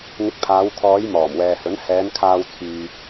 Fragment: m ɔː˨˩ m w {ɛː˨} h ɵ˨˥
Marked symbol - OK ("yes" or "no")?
yes